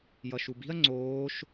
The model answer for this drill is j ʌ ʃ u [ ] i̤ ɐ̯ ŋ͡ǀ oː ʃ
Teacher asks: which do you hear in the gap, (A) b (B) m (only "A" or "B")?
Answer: A